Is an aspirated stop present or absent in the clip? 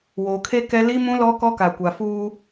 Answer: present